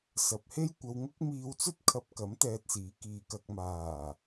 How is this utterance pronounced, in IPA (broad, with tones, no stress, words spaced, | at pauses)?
sɐ˨p̚he˥jkʷɐ˧wŋʊ˥k̚ miː˧wt͡sɵ˥t̚ kʰɐ˧p̚kɐ˨˥m t̪ɛː˧t̚siː˨˥kiː˨ kɐ˨k̚maː˨˩